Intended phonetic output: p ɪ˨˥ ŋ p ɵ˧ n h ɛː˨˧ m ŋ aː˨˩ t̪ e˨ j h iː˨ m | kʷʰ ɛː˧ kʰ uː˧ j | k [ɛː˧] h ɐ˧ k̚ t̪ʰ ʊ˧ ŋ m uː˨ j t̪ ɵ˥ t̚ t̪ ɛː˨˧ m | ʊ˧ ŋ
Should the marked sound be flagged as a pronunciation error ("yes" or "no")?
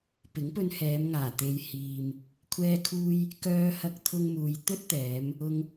yes